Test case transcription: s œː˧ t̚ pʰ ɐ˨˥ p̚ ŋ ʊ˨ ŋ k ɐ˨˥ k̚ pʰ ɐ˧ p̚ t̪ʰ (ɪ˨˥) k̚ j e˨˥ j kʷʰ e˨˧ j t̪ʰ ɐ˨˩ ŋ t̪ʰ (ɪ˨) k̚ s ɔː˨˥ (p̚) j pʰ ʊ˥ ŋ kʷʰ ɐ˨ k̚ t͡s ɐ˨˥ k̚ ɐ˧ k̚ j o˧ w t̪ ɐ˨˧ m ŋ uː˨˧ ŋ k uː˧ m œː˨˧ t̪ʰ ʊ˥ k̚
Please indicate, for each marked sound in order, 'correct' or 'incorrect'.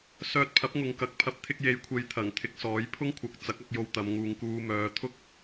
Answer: incorrect, correct, incorrect

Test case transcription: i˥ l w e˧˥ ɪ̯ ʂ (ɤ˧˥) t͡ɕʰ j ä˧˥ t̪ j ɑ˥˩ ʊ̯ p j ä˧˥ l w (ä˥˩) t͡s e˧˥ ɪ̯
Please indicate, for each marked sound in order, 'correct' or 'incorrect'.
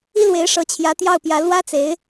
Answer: correct, incorrect

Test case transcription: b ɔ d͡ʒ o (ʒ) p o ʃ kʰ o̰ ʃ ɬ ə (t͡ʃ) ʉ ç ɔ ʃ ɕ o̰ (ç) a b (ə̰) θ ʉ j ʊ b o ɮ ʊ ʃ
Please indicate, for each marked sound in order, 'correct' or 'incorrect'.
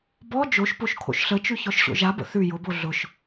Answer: incorrect, correct, incorrect, correct

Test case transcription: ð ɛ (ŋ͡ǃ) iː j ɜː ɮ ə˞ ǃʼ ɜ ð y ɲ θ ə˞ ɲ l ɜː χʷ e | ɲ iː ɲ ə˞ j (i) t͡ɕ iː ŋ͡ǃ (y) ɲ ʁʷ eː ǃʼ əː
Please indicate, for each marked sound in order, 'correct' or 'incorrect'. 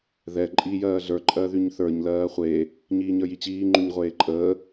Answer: incorrect, correct, correct

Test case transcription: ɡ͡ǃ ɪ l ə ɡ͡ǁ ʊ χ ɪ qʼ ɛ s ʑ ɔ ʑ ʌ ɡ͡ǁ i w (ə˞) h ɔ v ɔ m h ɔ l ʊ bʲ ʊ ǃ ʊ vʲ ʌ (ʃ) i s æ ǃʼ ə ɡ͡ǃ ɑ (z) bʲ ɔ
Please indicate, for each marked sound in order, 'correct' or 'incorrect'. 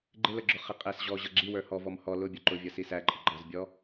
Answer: correct, incorrect, correct

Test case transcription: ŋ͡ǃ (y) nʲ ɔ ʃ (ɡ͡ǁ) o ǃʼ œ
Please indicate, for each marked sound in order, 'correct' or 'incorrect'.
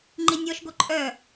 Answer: incorrect, incorrect

